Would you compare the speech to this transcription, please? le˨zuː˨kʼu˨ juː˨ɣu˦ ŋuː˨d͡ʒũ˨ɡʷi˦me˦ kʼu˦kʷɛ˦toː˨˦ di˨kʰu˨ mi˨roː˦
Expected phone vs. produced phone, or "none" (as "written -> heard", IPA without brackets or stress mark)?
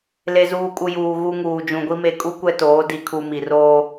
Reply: none